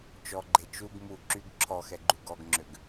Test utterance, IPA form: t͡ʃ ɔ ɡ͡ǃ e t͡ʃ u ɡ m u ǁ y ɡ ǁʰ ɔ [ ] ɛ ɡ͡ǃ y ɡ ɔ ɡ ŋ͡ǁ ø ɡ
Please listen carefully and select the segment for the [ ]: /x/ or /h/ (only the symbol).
x